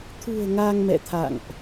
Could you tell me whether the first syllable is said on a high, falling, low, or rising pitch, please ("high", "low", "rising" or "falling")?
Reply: low